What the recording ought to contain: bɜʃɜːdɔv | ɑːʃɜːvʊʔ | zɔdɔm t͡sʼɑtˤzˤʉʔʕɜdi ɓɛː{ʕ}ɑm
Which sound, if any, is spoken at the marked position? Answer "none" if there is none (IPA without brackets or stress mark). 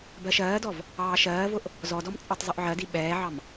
ʕ